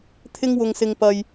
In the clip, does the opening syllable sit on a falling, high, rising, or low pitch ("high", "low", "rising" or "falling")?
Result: high